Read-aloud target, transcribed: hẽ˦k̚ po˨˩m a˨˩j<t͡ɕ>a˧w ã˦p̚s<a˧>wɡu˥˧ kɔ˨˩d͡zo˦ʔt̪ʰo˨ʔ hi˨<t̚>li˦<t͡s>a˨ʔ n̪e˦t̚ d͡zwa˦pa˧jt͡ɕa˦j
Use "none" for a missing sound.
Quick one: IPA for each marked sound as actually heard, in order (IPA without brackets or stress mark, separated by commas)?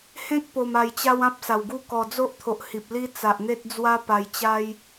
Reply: t͡ɕ, a˨˩, p̚, t͡s